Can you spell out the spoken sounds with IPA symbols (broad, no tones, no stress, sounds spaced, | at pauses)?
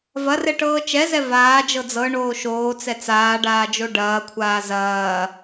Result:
v ɐ r ɛ ʈ ɤː t͡ʃ ɛ z ɛ v aː d͡ʒ ɤ d͡z ɤ ɳ oː ʃ oː t͡s ɛ t͡s aː ɖ aː d͡ʒ o ɖ ɐː kʷʰ aː z ɐː